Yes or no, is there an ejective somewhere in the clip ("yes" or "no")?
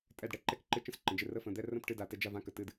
yes